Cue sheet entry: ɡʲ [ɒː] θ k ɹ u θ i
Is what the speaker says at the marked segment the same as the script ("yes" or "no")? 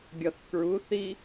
no